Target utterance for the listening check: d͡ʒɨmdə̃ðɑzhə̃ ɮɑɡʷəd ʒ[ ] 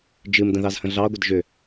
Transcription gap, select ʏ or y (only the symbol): ʏ